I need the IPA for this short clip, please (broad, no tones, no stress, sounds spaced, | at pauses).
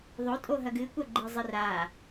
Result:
ðˤ o tʼ o ɦ ɐ ɡ ɨ kʷ ɐ ɡ͡ǃ ɨ zˤ ɨ r a